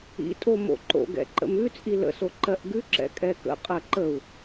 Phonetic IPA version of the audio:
ḭ tʼ o m o̰ ǃ o̰ ɡ ɛ̰ ǃ ə̰ m ʉ t͡sʼ i l ə̰ s o ǃ ɜ ʔ ɡ ʉ ǁ ɛ̰ kʼ ɛ k ə̰ qʼ ɜ ǃ ə u̯

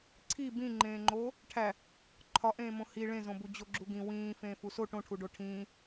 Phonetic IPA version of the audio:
ǀʰ i b ĩ ŋ͡ǃ ẽː ŋ͡ǃ oː | ʈʰ æ | ǃʰ ɒ ʔ ẽː m õ h i ɭ ẽ z õ b u d͡ʑ o ɡ͡ǁ u ɡ ĩ w ĩː f ẽː f u s o ʈ õ ʈʰ u ɖ o ʈʰ ĩː

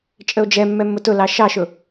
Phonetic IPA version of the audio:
t͡ʃʼ ə o̯ d͡ʒ ɛ mː ɛ mː ʊ t ʊ l ɑ ʃ ɑ ʃ ʊ

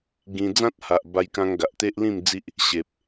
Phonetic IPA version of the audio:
ɡ ĩ˧ d͡z ã˦ t̚ h a˨ ʔ b a˧ j k ã˧ ŋ ɡ a˨ ʔ t̪ e˦ ʔ l ĩ˥˧ m d͡z i˦ ʔ | ɕ e˨ p̚

